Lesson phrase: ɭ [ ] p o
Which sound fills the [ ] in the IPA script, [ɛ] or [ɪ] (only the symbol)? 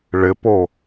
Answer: ɪ